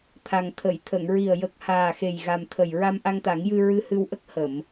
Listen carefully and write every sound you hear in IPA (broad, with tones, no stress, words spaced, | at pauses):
t̪ʰa˨˩ŋ t̪ʰə˨˩˨j t̪ʰə˨˩˨ŋɹi˨˩ə̯ jə˨˩k̚haː˨˩xe˨˩j ɣa˨˩mt̪ʰə˨˩j ɹa˧mʔa˧ŋt̪a˨˩˦ŋjɨ˧ ɹɨ˧hɨ˧wʔə˦˥k̚ hə˨˩˨m